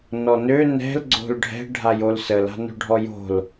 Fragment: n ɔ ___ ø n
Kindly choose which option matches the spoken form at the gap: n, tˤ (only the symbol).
n